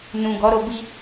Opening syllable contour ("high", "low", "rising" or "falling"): low